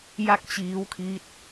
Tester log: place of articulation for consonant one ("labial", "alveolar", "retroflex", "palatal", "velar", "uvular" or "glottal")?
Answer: palatal